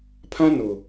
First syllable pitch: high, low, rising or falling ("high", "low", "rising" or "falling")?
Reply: high